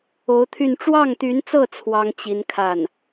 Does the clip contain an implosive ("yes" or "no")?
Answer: no